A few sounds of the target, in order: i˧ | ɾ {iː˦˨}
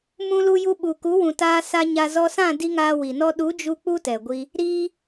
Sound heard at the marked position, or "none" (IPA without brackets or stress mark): iː˧